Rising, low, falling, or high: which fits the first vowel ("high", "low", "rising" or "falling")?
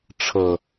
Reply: low